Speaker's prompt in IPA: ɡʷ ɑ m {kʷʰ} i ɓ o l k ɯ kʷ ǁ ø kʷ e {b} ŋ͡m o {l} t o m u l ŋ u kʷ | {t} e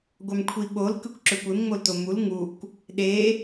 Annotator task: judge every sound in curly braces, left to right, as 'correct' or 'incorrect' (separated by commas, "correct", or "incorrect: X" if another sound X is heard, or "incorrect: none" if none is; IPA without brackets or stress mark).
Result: correct, incorrect: m, correct, incorrect: ɗ